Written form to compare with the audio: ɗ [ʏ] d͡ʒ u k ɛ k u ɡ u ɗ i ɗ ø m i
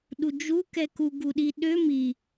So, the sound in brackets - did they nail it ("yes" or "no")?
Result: no